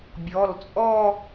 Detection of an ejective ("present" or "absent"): present